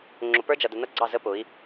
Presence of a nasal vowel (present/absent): absent